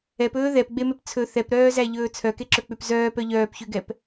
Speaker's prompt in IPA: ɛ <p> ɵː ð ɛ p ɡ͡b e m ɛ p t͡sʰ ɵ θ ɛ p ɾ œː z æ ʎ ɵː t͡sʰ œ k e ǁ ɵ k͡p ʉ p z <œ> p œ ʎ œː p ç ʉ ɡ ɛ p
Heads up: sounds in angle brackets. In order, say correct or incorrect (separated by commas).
correct, incorrect